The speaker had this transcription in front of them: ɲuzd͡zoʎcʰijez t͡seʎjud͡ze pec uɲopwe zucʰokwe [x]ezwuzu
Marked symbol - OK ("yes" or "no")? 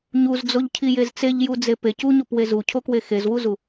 yes